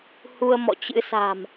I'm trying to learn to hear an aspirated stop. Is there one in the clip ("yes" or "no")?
no